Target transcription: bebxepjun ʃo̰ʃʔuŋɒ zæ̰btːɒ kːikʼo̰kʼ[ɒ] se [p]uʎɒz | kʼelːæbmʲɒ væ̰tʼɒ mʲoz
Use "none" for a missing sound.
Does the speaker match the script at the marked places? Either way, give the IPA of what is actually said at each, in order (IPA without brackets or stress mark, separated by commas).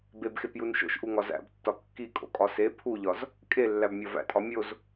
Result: ɒ, pʰ